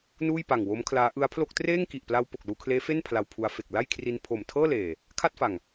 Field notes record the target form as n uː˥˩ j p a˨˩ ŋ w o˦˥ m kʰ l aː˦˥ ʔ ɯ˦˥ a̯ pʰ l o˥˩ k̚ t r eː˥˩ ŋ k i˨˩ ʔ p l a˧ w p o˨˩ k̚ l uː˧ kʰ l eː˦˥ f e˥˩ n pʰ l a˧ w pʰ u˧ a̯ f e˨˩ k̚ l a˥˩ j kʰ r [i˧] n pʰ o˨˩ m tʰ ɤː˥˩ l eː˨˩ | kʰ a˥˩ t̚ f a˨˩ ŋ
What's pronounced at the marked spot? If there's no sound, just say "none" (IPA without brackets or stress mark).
i˧